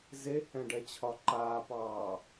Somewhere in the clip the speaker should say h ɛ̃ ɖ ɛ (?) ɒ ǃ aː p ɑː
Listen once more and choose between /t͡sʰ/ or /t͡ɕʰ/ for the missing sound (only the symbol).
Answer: t͡ɕʰ